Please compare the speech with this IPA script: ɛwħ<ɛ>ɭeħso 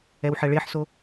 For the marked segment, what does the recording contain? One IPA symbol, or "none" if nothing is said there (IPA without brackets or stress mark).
ɛ